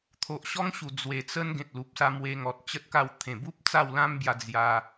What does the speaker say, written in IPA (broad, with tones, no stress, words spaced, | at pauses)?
t̪ʰo˨ʔɕɔ˦ŋɕu˨˩ d͡zwe˨˩t͡sə˦n ɡẽ˨t̚lu˨p̚sa˧ mwe˧ŋɔ˨t̚t͡ɕə˦t̚ka˥˧w t̪ʰẽ˨˩bu˦p̚ t͡sa˥˧wlã˦mbja˧ d͡zja˧